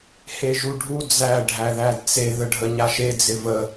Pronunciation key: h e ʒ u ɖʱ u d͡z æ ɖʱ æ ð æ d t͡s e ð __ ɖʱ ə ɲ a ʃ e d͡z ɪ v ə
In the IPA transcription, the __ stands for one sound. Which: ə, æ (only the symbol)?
ə